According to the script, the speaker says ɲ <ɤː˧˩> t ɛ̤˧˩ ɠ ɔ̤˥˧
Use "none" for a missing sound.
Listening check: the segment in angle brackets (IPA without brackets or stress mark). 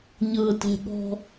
ɤː˧˩